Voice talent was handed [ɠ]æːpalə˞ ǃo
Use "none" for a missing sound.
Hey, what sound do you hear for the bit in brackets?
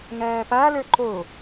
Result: ŋ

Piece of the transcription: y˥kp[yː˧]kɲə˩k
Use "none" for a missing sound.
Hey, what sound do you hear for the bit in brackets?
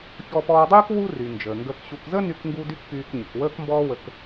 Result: yː˧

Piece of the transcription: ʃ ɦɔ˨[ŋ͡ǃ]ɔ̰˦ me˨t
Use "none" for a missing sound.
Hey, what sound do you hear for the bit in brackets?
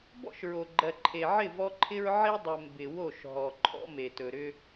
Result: ǃʰ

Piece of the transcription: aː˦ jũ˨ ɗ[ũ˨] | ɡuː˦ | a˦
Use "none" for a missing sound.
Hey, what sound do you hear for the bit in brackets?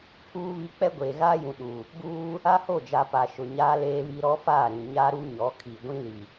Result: u˨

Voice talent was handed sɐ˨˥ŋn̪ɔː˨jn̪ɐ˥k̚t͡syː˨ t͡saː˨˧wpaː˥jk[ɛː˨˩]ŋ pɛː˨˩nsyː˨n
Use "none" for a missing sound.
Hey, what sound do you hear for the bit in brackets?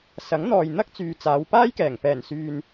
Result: ɛː˨˩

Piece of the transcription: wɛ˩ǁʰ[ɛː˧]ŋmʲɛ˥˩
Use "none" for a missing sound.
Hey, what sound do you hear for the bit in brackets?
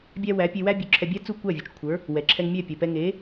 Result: ɛ˧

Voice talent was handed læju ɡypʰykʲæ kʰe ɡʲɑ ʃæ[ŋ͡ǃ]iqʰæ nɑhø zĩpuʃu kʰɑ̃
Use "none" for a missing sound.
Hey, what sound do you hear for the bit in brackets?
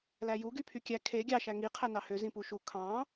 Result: ŋ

